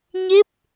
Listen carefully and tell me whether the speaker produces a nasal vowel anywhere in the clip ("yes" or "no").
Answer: no